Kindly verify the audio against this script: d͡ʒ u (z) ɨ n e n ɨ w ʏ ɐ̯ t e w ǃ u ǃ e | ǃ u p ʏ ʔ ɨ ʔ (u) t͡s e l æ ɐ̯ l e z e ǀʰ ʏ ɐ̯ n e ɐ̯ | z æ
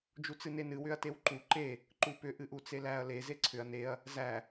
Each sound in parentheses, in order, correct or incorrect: incorrect, correct

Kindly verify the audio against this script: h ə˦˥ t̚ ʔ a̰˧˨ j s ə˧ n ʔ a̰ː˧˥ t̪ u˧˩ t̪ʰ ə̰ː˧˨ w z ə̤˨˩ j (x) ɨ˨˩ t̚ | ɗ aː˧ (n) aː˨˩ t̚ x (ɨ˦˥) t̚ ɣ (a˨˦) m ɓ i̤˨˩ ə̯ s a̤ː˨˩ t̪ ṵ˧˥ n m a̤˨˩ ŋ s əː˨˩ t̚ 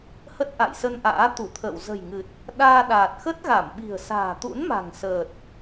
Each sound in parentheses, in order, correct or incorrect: incorrect, incorrect, incorrect, incorrect

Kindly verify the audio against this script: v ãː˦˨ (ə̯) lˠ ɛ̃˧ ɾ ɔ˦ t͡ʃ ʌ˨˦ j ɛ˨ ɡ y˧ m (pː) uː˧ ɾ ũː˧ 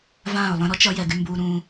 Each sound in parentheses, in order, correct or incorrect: incorrect, incorrect

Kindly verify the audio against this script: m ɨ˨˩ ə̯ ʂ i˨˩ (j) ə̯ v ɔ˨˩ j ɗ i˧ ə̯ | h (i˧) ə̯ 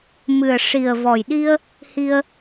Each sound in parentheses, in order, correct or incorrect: incorrect, correct

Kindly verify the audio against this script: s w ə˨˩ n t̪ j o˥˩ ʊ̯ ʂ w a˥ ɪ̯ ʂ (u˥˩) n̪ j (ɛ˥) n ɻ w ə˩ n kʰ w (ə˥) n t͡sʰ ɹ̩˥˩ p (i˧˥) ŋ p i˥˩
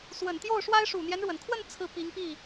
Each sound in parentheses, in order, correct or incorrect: incorrect, incorrect, incorrect, correct

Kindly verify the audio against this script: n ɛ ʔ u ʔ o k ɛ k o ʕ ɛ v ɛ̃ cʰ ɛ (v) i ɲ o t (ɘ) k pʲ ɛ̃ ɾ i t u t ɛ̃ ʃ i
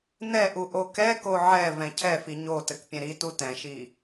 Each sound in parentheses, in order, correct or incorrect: incorrect, correct

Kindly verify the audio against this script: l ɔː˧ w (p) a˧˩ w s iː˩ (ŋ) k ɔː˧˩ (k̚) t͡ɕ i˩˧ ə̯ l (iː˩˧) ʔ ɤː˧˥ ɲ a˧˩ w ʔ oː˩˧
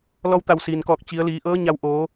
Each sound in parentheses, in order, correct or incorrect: incorrect, incorrect, correct, correct

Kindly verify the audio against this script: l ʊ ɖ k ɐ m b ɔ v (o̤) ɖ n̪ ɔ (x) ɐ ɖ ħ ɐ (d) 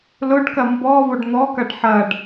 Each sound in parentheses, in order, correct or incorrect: incorrect, incorrect, incorrect

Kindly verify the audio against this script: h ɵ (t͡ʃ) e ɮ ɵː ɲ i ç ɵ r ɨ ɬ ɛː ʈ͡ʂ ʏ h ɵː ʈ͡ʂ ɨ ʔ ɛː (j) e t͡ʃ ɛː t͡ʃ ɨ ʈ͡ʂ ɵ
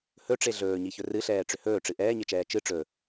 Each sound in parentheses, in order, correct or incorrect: incorrect, incorrect

